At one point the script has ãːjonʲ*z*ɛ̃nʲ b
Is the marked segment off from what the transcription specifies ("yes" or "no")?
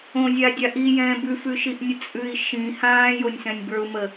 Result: yes